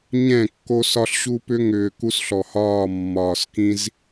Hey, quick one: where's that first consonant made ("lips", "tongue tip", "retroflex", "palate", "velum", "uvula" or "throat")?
palate